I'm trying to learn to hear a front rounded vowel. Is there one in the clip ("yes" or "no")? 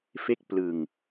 no